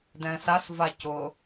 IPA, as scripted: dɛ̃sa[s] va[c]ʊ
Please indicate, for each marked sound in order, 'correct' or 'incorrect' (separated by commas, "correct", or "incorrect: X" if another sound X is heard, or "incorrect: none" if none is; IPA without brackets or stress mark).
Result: correct, correct